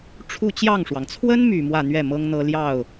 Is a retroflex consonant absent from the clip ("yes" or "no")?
no